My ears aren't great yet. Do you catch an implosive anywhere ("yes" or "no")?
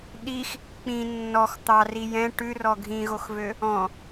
yes